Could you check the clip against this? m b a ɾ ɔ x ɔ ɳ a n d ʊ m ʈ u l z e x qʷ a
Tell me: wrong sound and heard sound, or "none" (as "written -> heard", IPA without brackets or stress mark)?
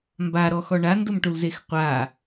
none